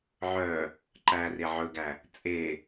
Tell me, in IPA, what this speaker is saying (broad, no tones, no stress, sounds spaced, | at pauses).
ʕ œ | ǃ æ r e ʕ ɵ ɡ æ | t͡sʼ e